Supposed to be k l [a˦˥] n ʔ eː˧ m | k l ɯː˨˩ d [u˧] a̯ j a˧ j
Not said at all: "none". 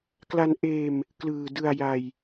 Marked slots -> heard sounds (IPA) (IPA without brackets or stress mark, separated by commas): a˧, ɯ˧